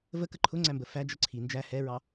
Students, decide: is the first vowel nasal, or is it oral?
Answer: oral